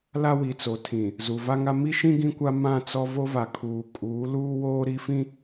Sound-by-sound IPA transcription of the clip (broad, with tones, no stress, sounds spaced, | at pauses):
l a˦ w i˨ t͡s o˨ tʰ ĩ˨ | z u˨ v a˦ ŋ a˦ m i˦ ʃ ĩ˦ ɡ ĩ˦ kʷ a˦ m ã˦˨ t͡s ɔ˦ v o˦ v a˨ kʰ uː˨ kʼ uː˨˦ l uː˦ w oː˦ ɾ i˦ f ĩ˦